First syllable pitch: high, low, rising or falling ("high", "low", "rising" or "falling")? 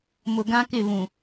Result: low